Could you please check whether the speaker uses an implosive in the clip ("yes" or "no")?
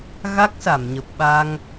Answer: yes